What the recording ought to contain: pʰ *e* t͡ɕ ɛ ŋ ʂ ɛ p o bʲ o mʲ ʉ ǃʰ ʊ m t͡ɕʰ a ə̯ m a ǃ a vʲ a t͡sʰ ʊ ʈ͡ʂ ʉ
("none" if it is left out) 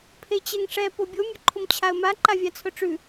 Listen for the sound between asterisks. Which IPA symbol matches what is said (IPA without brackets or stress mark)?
e